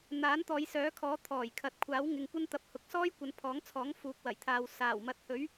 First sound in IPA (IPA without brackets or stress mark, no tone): n̪